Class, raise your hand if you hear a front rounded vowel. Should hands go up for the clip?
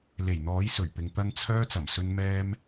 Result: yes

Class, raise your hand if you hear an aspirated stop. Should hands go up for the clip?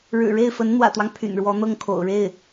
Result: yes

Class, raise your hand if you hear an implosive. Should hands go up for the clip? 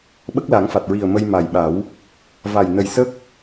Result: yes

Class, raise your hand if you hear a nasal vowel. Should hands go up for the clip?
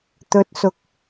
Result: no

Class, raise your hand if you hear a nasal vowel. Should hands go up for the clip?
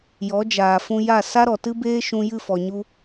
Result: yes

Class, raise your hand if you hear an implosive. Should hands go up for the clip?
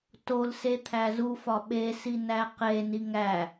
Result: yes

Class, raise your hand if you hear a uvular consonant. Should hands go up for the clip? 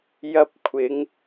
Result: no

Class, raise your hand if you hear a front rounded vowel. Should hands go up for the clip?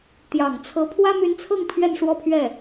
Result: yes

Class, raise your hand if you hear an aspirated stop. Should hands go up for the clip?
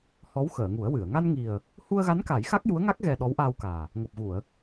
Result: no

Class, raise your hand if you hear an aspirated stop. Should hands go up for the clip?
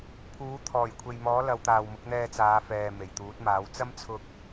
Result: yes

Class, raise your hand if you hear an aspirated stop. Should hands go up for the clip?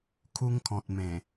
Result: yes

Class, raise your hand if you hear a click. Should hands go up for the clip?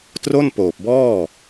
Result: no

